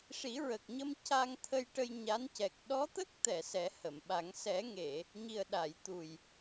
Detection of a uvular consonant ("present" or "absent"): absent